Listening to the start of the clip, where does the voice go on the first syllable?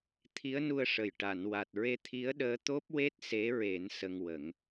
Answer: rising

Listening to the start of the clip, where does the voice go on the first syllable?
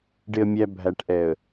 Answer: low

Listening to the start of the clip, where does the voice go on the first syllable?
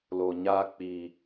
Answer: low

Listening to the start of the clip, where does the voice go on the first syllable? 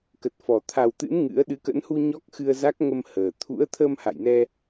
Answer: low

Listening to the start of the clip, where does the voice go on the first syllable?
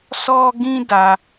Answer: high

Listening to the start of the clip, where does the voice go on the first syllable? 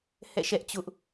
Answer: falling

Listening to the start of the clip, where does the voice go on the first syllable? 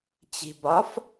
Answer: low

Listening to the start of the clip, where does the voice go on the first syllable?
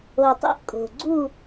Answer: low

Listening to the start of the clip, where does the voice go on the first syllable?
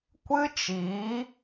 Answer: high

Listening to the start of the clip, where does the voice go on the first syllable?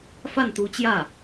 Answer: falling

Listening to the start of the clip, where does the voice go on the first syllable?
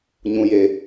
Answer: low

